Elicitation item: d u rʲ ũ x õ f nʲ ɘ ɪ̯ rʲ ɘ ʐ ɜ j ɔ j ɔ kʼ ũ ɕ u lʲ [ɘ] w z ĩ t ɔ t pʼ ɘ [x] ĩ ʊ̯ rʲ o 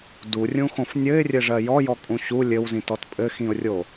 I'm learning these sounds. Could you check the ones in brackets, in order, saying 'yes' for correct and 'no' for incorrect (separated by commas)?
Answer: yes, yes